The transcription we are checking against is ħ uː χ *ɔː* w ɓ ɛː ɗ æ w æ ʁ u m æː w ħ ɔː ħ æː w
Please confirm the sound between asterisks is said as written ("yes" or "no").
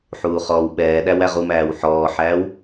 yes